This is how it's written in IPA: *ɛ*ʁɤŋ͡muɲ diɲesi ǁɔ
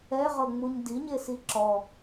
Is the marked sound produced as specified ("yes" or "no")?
yes